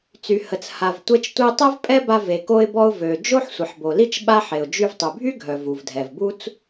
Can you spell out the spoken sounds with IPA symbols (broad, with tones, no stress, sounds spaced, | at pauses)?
t͡s y˩ h ə˩ t͡s h a˩ v tʷ ɛ˧ t͡ʃ tʷ i˧ tˤ ɛ˥ v pʼ ɛ˥ b a˧ v e˩ k o˧ ɪ̯ b ɔ˧ ʊ̯ v ø˩ d͡ʒ o˥ ħ sʷ ə˩ ħ b o˩ l i˥ t͡ʃ ɓ a˥ ħ e˩ ʊ̯ d͡ʒ y˧ v tˤ y˩ bʱ y˥ ɡʱ œ˩ v u˩ v dʱ ɛ˩ v b u˥ t͡s